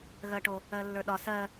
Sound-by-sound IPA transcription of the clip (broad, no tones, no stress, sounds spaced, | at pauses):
ɣ ɜ ʈ o | ɜ lː ə˞ ɗ ɒ s ɜ